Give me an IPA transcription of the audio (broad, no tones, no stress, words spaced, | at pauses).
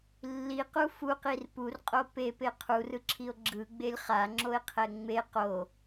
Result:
lːiqu fuqir purqʼo pepe qʰurɯǁʰio̯ ɡ͡ǁɯɡ͡belʲ χaŋ͡ǁoe̯qʰɛ ŋ͡me qo